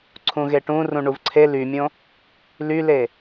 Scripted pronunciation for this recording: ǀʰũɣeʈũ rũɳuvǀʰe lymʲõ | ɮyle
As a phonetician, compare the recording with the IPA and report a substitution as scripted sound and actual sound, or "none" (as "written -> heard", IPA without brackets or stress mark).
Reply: ɮ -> l